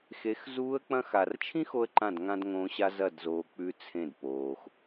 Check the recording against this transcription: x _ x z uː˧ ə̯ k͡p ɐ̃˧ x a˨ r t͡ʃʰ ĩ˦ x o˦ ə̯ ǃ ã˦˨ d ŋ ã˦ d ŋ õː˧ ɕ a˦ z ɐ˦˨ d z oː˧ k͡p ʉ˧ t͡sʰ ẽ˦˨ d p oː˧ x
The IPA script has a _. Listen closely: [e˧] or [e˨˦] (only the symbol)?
e˨˦